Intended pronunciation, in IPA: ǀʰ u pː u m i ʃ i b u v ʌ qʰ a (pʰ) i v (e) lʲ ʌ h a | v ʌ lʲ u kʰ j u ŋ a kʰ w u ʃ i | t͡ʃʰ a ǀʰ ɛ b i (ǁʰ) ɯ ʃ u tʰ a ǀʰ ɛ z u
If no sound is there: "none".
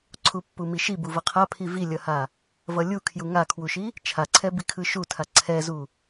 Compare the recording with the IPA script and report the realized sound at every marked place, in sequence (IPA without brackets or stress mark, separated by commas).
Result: pʰ, i, kʰ